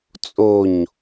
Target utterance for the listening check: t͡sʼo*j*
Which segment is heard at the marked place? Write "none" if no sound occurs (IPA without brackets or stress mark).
ɲ